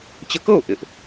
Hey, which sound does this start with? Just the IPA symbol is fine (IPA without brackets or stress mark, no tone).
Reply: t͡ɕ